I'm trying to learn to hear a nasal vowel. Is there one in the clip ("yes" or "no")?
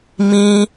yes